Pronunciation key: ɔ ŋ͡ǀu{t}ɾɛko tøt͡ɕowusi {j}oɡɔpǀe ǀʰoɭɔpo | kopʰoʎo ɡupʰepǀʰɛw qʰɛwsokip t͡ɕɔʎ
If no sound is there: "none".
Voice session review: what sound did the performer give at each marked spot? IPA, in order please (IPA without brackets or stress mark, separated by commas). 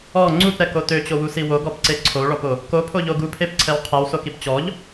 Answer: t, w